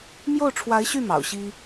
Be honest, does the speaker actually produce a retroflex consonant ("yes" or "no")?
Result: yes